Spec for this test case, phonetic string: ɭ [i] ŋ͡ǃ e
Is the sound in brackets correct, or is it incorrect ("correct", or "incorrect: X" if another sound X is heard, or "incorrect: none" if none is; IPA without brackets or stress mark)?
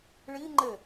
correct